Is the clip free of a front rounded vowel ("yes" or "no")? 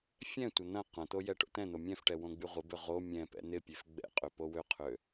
no